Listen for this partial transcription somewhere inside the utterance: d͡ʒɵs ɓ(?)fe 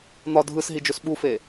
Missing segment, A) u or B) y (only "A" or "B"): A